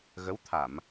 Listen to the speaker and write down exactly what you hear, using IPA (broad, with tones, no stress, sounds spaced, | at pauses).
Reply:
ɣ ə˨˦ w t̪ʰ a˧˩˨ m